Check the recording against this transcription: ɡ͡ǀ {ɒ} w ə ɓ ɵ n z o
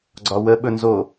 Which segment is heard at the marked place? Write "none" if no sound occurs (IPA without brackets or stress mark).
ɒ